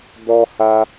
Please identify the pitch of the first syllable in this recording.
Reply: high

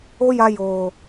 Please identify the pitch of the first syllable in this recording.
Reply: high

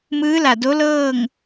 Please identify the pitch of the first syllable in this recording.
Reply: rising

